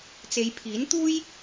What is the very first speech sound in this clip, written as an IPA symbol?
t͡s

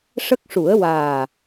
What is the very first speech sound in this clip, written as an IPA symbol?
ʂ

